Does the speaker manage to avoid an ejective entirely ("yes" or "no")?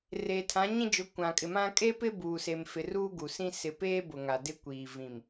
no